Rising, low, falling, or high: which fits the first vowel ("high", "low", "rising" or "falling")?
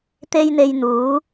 high